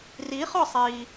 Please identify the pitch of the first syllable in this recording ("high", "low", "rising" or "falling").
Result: rising